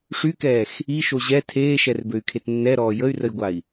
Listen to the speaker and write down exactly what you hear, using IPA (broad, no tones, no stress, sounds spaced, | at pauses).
ʂ y k ɛː x | i ʃ o ʑ ɛ tʰ eː ʃ ɛ r b ø y̯ kʰ e t nː ɛ ɾ ɔː j ə y̯ r ə j ɡʷ a i̯